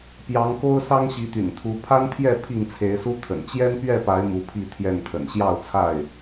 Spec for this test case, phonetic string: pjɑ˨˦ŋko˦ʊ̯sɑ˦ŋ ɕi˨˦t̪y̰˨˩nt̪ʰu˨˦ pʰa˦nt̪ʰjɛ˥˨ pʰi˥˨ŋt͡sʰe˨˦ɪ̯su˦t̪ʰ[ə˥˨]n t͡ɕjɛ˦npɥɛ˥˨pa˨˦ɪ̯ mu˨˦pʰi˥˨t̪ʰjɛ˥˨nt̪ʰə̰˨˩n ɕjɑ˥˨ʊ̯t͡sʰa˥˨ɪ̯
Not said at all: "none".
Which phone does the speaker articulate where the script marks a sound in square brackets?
ə̰˨˩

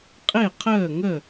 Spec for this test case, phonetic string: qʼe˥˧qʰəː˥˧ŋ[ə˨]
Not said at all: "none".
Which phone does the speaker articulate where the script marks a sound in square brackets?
ə˥˧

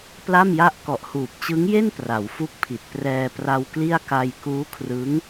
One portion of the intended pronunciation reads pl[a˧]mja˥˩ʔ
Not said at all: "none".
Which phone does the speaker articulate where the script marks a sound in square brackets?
a˥˩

